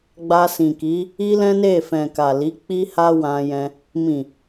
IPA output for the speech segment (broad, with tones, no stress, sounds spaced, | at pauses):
ɡ͡b a˧ s ĩ˨ k i˨˦ | i˦ l ɛ̃˦ n e˦˨ f ɛ̃˨ k a˨ l i˨˦ k͡p i˦ h a˦ w ã˧ j ɛ̃˧ | m ĩ˨